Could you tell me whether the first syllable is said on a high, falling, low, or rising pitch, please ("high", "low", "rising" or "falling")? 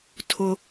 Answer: high